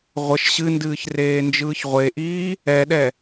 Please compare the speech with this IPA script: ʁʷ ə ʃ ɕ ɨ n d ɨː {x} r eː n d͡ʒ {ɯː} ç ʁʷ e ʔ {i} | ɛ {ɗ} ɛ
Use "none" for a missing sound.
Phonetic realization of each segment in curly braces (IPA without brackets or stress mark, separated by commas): ç, ɯː, iː, ɗ